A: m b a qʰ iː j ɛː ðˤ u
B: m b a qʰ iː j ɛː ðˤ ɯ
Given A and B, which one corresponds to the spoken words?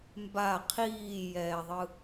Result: B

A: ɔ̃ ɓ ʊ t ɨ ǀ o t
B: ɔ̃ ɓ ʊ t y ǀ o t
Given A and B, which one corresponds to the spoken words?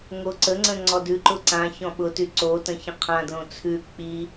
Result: B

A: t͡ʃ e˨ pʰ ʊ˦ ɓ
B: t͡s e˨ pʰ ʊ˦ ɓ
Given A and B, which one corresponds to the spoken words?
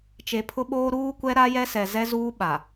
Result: A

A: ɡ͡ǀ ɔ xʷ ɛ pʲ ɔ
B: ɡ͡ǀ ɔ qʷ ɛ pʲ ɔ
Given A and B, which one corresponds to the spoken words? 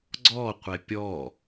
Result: B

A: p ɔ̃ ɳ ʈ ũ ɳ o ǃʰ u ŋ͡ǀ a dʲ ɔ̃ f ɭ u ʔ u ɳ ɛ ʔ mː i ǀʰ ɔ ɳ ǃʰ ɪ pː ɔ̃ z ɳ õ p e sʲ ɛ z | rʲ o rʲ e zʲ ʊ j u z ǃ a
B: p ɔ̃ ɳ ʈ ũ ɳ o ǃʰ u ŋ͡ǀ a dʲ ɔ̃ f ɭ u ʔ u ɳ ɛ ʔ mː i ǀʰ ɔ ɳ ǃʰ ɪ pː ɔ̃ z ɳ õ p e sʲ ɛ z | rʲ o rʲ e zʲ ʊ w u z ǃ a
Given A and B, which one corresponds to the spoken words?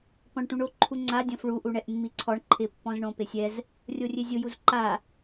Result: A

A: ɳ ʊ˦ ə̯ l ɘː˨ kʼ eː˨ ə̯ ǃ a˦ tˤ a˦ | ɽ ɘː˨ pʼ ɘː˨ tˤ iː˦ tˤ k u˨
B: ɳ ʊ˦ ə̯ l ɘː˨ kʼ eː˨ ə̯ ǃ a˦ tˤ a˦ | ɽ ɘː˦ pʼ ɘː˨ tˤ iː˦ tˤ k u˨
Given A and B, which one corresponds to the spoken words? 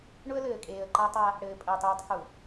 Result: A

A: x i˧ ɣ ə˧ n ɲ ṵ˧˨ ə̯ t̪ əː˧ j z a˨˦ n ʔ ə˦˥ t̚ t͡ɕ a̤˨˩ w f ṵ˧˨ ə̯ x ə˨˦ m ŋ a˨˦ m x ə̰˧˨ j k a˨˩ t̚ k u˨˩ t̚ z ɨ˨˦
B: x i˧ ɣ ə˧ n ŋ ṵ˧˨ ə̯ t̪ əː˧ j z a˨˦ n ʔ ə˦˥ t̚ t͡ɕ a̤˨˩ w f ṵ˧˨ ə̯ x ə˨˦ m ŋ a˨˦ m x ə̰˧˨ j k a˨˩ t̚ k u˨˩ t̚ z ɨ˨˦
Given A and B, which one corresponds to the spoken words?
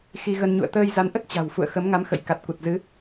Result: A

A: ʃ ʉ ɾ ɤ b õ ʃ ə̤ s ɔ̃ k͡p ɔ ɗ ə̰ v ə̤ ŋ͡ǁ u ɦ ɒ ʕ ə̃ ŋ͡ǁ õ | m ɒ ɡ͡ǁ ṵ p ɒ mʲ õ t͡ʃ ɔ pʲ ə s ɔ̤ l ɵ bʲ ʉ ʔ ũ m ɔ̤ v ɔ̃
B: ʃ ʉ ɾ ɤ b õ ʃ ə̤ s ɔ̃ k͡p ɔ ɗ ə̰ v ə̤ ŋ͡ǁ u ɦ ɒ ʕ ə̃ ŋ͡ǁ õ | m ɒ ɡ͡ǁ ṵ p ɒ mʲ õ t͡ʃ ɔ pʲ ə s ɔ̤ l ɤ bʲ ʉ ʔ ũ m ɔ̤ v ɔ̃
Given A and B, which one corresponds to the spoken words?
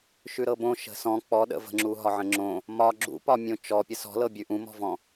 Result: B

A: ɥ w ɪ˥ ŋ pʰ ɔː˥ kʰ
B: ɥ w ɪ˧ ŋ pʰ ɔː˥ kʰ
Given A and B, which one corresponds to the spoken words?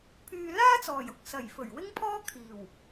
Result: A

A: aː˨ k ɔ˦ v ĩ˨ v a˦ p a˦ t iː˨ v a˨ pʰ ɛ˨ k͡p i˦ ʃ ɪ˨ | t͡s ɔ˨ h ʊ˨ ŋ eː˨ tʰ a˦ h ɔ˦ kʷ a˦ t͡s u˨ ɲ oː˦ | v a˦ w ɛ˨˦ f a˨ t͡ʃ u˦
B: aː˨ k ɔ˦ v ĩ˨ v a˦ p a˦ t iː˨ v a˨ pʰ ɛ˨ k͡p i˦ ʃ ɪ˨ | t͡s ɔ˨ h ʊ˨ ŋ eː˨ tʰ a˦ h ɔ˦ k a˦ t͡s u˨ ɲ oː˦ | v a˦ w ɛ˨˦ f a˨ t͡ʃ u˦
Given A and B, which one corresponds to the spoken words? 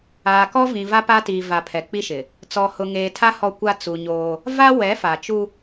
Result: A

